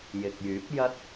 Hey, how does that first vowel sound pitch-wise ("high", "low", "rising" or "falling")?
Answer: low